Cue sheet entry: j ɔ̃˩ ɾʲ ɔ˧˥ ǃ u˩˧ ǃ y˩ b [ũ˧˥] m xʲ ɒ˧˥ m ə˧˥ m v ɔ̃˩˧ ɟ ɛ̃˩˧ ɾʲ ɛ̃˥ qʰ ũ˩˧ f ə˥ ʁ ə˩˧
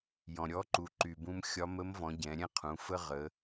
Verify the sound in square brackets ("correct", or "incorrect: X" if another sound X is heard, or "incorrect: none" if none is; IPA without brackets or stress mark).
incorrect: ũ˧